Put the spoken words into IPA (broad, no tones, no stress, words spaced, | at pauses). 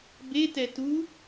betɛ tu